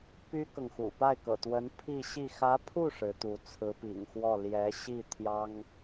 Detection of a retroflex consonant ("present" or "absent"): present